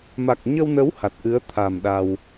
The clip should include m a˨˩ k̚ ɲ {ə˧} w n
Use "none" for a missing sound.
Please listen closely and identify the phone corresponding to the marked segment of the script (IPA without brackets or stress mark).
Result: ə˧